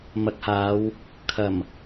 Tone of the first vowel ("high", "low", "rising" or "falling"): low